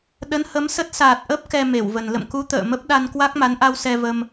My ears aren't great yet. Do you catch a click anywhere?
no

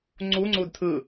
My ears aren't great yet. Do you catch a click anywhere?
yes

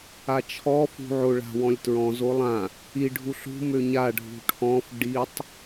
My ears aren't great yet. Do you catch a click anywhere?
no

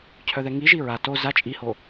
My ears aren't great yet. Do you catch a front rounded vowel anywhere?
yes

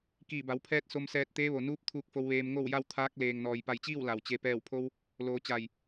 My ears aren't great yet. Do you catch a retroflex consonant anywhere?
no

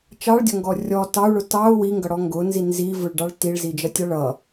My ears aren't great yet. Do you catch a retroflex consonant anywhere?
yes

